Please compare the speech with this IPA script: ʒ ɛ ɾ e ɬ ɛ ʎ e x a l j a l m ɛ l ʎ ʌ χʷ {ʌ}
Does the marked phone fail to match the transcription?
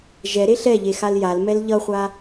yes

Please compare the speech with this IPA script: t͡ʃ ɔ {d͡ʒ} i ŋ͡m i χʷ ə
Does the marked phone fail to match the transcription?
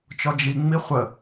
no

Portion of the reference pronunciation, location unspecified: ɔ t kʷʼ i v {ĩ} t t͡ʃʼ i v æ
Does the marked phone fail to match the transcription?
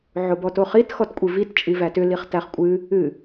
yes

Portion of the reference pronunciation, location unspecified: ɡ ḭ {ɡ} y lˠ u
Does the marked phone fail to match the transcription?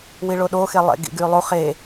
no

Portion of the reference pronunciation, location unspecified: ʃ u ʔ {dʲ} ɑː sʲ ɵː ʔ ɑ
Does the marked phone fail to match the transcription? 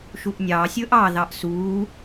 yes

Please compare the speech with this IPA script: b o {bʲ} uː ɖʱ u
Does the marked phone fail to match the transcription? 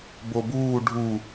yes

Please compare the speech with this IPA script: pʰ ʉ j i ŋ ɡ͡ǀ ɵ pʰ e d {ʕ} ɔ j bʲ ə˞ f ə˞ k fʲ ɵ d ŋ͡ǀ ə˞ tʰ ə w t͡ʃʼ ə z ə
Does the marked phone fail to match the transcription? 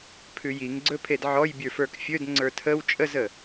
no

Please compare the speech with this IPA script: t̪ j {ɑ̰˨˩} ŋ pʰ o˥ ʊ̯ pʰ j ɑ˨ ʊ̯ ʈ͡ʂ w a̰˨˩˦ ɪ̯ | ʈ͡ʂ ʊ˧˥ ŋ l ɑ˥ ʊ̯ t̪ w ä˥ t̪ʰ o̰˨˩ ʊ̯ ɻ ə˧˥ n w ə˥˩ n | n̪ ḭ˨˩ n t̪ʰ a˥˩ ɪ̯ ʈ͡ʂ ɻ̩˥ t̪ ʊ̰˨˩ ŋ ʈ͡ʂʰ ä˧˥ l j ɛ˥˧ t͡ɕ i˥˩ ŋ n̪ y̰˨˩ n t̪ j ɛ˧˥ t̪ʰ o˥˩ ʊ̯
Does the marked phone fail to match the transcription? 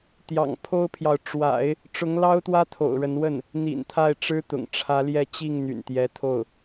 no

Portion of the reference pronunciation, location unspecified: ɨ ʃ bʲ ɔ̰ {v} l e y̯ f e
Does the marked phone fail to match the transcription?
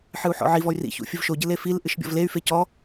no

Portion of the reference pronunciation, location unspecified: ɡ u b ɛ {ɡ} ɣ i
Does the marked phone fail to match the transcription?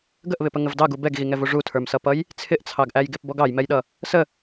no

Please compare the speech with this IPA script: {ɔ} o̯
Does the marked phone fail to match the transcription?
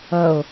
yes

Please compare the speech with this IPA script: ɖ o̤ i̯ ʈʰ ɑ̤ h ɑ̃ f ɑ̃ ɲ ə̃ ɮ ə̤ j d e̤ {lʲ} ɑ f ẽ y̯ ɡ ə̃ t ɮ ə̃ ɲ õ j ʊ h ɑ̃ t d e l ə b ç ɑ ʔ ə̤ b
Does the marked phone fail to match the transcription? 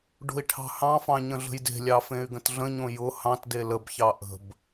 no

